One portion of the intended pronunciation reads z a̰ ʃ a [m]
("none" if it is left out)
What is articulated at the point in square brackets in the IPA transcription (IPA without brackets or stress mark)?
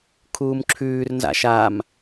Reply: m